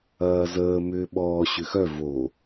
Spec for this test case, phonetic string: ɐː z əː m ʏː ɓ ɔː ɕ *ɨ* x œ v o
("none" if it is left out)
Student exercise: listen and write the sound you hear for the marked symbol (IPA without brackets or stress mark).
ʏ